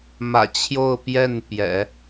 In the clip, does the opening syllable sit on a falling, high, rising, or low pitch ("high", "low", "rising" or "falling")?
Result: low